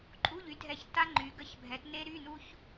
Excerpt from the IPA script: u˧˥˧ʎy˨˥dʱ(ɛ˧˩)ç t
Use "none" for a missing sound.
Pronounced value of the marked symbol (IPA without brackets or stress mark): ɛ˧˩